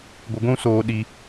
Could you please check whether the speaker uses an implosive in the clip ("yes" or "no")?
yes